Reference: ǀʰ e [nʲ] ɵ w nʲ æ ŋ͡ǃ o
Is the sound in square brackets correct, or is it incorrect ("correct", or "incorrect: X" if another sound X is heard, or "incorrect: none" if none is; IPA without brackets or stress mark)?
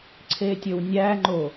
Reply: incorrect: tʲ